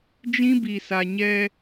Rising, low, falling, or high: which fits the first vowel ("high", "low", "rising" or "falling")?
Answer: high